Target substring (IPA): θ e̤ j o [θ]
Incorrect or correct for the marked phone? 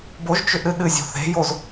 incorrect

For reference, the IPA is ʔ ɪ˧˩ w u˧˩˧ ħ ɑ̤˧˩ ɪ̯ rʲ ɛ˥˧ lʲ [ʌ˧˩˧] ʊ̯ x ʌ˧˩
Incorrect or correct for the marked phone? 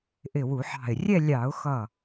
incorrect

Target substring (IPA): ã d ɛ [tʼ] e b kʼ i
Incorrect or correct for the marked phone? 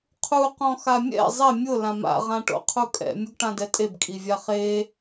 correct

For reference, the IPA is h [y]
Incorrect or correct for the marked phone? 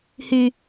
correct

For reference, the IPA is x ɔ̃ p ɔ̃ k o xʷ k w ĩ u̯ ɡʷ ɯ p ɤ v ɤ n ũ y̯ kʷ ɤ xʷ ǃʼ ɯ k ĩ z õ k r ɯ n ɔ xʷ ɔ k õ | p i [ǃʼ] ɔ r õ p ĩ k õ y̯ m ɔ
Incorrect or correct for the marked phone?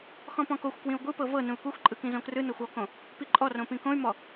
correct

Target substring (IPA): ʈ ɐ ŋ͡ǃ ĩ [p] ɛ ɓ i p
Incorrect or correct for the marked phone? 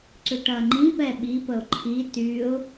correct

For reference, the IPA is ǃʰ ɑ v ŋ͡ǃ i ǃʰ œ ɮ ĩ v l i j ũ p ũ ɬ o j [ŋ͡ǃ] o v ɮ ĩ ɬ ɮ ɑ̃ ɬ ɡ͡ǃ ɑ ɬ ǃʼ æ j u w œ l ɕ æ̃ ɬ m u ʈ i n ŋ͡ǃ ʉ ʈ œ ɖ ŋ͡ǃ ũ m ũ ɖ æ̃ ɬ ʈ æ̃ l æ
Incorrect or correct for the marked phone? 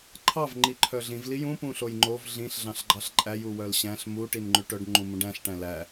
correct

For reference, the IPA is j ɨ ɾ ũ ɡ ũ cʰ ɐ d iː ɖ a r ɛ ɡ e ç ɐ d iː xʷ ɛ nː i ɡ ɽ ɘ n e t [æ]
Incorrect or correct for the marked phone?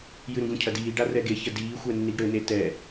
incorrect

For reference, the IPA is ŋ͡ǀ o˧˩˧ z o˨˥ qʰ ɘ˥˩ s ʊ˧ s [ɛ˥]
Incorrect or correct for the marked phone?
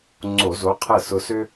incorrect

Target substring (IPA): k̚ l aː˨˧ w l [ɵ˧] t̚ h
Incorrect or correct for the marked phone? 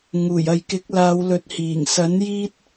incorrect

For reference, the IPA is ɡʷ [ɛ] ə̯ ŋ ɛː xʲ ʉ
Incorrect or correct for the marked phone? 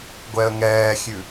correct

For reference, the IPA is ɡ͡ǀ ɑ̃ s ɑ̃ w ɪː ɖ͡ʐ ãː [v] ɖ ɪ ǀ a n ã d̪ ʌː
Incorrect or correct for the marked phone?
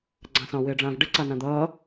correct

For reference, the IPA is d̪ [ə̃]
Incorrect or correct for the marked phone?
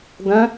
correct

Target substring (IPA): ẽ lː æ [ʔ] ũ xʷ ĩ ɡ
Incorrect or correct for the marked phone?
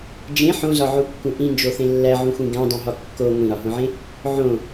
incorrect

